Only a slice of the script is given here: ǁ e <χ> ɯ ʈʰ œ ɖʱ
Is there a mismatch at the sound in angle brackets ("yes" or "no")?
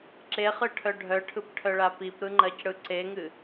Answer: no